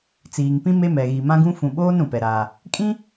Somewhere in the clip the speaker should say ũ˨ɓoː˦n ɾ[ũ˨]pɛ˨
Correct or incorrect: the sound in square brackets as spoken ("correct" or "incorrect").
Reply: correct